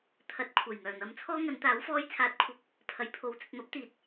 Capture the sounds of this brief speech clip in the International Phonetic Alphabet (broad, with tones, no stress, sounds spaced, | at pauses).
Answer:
t̪ʰ ɐ˨˥ t̚ kʷʰ ɐ˨˩ j ŋ œː˨˩ n̪ ɐ˨˧ m t͡sʰ ɔː˥ ŋ ɐ˨˧ n t̪ aː˨˥ w f ɔː˧ j t͡sʰ aː˨˥ t̚ kʷʰ ɐ˨˥ p̚ | pʰ ɐ˨˩ j pʰ o˨ w t͡s ɵ˨ t̚ m ɐ˨˥ p̚ t̪ iː˨ t̚